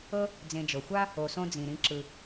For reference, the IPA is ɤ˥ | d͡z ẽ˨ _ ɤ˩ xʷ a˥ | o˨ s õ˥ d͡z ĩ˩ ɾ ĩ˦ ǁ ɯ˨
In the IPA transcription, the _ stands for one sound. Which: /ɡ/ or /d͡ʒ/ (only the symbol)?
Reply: d͡ʒ